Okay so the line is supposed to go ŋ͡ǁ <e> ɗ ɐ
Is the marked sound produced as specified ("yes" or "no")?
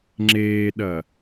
no